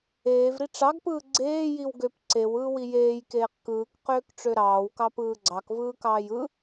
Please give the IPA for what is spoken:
eː v ɾ i ʈ͡ʂ ɑ ɡ p ɯː ɡ͡ǀ eː j i w ɡ ø p ǀ e w ɯː w i j eː j k eː q k ɯː k q øː k ʈ͡ʂ ø ɾ ɑː w k ɑ p ɯː ɡ͡ǀ ɑ k v ɯː k ɑː j ɯ

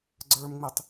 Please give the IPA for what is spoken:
ɡ͡ǀ ə˞ m ŋ͡m i tˤ

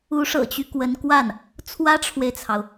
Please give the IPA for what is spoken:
u˧˥ ʂ ɤ̰˨˩ t͡ɕ y˦ k w ə˧˥ n k w a˥˩ n | t͡sʰ w ä˥ ʈ͡ʂʰ w e˨ ɪ̯ t͡sʰ ɑ˩ ʊ̯

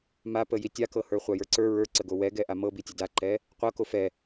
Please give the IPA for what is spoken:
m a p ə j i tʲ a k ɤ h ə˞ χʷ a j ə˞ ǀ ə˞ ɹ ə˞ ǀ ə ɡ o w ɛ ɡ ɛ ʔ a m ɤ b i tʲ ə d a ǃ ɛ | qʷ ɤ k o f ɛ

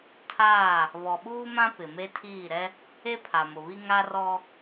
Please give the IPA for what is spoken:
tʰ aː˦˨ | β ɔ˨ ɓ uː˦ m ã˦ p ɪ˨ m e˦ tʰ iː˦˨ ɾ ɛ˦ | e˦ pʰ a˨ m ʊ˨ β i˦ ŋ a˦ r ɔ˦

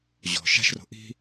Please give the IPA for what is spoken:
ʑ ɔ̤ ʃ a̤ ʃ r o̤ ʔ i̤

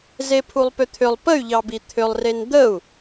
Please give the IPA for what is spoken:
z e pʰ u lˠ p ʏ t̪ʰ ʏ lˠ p ə y̯ ʎ ɑ b i t̪ʰ ʏ lˠ r e n d̪ ə u̯

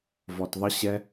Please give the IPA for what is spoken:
v ɔ˧ t ðˤ ə˦ ɕ ɛ˦

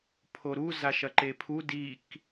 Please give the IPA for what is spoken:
pʰ o ɾ u z a ʃ ɐ ǃ e pʰ u d i k

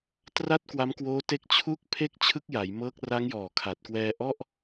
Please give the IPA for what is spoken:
t r a˥˩ t̚ k w a˦˥ m k w oː˦˥ t e˦˥ k̚ t͡ɕʰ u˥˩ k̚ pʰ e˥˩ k̚ t͡ɕʰ ɯ˥˩ k̚ j a˩˦ j m ɤː˦˥ k̚ r a˦˥ ŋ j ɔː˨˩ kʰ a˨˩ t̚ k w ɛː˧ ʔ ɔ˥˩ ʔ

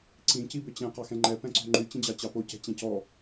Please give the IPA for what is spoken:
ǀ ĩ c i b ʏ t͡ɕ ɛ̃ q ɑ x ɛ̃ ŋ͡ǃ ɛ p ɛ̃ ǀ o̤ ŋ͡ǃ y t͡ɕ ĩ d͡ʑ ɑ t͡ɕ ɑ p o c ɛ̤ t͡ɕ ɛ̃ c ɔ

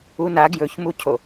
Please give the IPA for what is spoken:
u n a ɡ j ɵ ç m u cʰ o

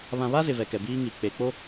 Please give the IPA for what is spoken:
β ã˨ β a˦ z ɪ˨ v ɛ˨ k ɛ˨ b iː˦ ŋ i˨ k͡p e˨ k͡p o˦

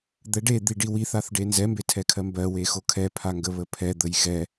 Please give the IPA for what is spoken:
d̪ ɛ ɖ e d̪ i ɖ i w i θ a θ ɖ e n z ɛ m b e tʰ ɛ kʰ ɜ m b ɜ w e x o kʰ ɛ pʰ a ŋ ɡ ə β ə pʰ ɛ d̪ ə j x ɛ

